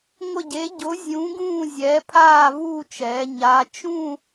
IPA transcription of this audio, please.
ŋʷ ɪ˦˨ ɟ e˨˥ ɟ ʊ˨˥ zʲ ũː˨˥ ɡ ũː˦˨ zʲ ɛː˨˥ pʰ aː˦˨ v uː˦˨ t͡ʃ ɛː˩˧ ɲ a˩˧ t͡ʃ ũ˦˨

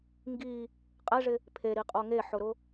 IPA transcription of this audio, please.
ŋ ɡ i | qʼ ɛ ʐ ɪ | pʰ e ɾ i qʼ o ŋ e ħ ʊ ɾ ʊ

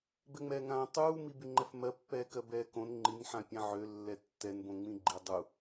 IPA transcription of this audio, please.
b ɛ ŋ͡m ɛː ŋ ãː tˤ uː m i b y ŋ͡ǃ ɛ f m ɜ pː ɛː k ɜ b ɛː k õ n ŋ͡ǃ i n ħ ã pʲ ã ʕ ø lː ɛ tː ɛ n b õ ŋ͡m ĩ ɡ͡ǃ i dˤ u

